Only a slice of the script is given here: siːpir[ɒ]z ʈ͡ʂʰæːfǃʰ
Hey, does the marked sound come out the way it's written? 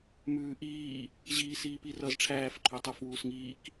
no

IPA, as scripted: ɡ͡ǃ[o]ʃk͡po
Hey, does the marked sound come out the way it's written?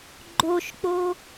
yes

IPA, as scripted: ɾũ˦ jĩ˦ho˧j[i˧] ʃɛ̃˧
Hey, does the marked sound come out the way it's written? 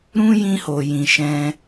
no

